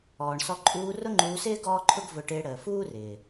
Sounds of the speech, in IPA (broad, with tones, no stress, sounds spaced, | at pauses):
ɔː˨ ɳ s ɔ˧ ǃʼ uː˧ r ʊ˦ ŋ͡ǃ uː˧ s ɪː˦ ɡ ɔː˦ ǃʰ ʊ˦ ɡ v ʊ˧ ʈ ɪː˧ ɽ əː˨ f uː˦ r ɪː˨